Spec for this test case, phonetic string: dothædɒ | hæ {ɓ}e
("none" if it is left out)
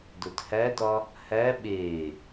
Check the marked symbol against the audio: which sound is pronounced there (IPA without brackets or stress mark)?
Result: ɓ